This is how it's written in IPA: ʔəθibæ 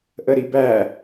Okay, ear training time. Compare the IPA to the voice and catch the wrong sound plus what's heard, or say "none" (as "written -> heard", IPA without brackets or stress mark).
θ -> ɾ